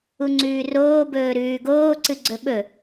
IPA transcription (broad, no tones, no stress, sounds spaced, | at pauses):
u ŋ͡ǀ ʉː r oː b ɵː ɾ ʉː ɡ oː ǀ ɨ ɡ͡ǀ ɵ ɓ ɵ